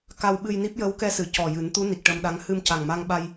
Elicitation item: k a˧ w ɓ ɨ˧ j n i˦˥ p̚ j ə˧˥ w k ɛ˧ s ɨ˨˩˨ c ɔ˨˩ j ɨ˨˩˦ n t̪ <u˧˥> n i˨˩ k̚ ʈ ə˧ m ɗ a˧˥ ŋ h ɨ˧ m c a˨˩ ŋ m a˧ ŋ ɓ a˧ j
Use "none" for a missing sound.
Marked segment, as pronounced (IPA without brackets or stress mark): u˧˥